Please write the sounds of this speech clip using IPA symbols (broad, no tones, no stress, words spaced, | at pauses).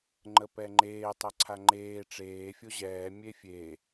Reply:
ŋ͡ǃəpɛŋ͡ǃeː tˤɛǀʰaŋ͡ǃeː ʈ͡ʂeː fʲoʑɛː mʲefʲe